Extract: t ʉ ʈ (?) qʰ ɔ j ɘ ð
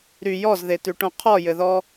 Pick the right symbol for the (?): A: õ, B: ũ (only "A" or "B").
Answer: A